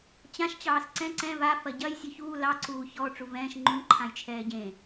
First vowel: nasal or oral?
nasal